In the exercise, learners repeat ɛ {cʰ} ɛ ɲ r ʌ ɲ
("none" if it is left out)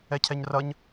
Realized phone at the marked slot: cʰ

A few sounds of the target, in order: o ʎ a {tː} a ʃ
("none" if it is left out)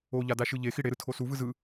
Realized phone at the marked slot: d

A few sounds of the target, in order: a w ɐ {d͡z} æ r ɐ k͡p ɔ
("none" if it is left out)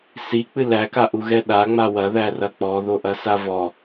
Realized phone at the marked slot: ð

